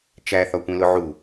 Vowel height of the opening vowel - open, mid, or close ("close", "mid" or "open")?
open